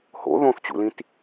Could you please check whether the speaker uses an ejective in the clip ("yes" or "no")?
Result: no